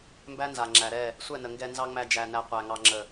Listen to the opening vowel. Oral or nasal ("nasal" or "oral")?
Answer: oral